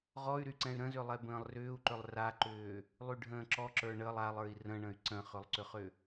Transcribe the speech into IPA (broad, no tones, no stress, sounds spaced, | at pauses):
ʁ ɔ y̯ ɾ y ǀ ɛ̃ y̯ ɾ ə̃ z ʏ lˠ ɛ b ə̃ː lˠ r ʏː u̯ ǃ ʏ lˠ r a ǃ ʏː | lˠ y ɖʱ ə̃ː ǁ ɔ ǁ ə˞ ɳ ə lˠ a lˠ ə˞ i̯ r ə̃ ɳ ə̃ y̯ ǀ ə̃ χ ʏ lˠ ǀ ʏ χ ʏ